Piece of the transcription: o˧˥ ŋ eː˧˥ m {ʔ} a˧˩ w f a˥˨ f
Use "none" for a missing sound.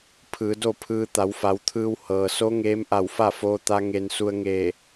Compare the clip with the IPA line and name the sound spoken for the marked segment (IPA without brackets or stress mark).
ʔ